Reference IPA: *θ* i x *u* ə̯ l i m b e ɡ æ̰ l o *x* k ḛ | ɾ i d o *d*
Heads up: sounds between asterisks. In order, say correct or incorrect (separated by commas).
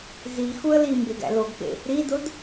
incorrect, correct, incorrect, correct